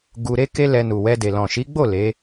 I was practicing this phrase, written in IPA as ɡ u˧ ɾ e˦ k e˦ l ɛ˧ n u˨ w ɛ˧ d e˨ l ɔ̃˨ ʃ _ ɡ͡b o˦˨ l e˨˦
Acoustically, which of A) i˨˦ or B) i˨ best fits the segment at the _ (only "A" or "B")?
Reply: A